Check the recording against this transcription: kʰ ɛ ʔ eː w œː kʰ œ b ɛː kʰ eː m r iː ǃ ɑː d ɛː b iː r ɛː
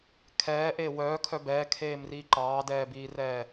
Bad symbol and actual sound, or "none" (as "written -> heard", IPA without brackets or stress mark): ɛ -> ɛː